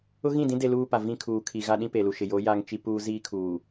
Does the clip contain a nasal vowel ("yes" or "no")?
yes